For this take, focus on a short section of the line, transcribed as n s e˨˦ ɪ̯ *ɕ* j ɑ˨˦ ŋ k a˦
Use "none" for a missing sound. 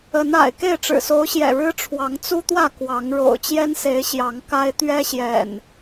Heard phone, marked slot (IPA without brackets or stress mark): ɕ